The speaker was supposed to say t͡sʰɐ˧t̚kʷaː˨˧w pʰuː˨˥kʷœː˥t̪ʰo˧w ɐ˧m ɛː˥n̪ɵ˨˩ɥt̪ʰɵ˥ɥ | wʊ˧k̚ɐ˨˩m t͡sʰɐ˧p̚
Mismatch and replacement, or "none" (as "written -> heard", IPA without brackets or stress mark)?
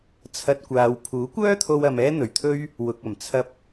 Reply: ʊ˧ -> ʊ˨